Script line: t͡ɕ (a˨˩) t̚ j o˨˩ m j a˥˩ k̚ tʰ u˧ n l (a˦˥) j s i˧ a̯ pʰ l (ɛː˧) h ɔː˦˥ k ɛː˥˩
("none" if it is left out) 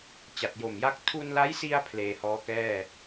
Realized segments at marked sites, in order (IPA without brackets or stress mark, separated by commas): a˨˩, a˦˥, eː˧